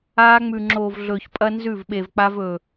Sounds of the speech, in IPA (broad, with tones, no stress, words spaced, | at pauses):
aː˦ ŋ͡mʉ˨ŋ͡ǁoː˨vɮɵː˨ç pʼɐ˦nzʉ˦˨vɓe˨vk͡pa˦v ɵ˨